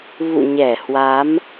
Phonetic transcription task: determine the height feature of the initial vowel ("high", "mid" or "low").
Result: high